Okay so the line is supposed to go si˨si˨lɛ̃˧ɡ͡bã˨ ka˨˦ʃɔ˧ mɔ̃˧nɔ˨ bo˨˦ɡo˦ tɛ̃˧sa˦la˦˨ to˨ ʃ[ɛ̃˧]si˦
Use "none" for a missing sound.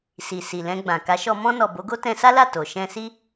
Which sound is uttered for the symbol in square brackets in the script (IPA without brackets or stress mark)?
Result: ɛ̃˧